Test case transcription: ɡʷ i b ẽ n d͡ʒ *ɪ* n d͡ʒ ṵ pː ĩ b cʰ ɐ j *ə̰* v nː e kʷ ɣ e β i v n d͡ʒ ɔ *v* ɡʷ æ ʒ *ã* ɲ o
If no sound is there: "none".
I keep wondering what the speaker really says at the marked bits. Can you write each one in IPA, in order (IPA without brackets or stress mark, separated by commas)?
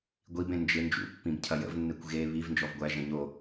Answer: ɪ, ə̰, v, ɐ̃